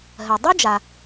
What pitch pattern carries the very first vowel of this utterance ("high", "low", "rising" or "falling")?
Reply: low